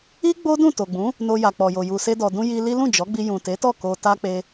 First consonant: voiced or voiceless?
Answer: voiced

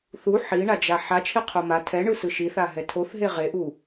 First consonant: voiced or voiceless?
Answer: voiceless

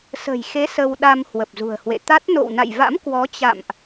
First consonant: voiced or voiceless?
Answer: voiceless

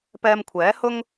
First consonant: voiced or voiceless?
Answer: voiceless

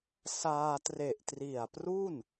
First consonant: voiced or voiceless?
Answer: voiceless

